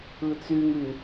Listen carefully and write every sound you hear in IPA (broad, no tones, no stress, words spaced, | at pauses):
ɯt͡symy